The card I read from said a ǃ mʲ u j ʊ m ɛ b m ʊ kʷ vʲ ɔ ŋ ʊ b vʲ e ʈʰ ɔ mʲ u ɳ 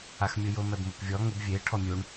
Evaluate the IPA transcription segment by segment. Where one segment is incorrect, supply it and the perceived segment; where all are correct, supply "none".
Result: ǃ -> x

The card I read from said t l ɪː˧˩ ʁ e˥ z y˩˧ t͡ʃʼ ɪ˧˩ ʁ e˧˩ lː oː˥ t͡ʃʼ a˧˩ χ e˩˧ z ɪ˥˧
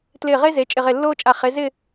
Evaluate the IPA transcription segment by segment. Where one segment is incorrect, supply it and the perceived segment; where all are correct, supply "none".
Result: y˩˧ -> e˩˧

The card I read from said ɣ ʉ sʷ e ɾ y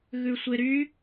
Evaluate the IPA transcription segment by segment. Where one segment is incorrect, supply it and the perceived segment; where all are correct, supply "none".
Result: none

